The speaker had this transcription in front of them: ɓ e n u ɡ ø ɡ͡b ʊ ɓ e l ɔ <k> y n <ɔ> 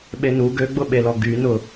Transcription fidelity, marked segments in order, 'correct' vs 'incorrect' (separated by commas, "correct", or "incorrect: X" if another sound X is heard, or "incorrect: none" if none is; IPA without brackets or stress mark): incorrect: ɡ, incorrect: ʊ